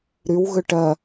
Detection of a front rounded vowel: present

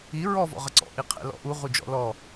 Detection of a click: present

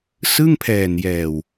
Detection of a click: absent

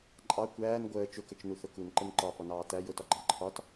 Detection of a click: present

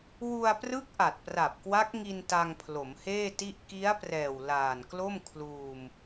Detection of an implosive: absent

